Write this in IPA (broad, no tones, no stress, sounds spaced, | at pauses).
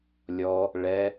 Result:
lʲ ɔ | ɭ ɛ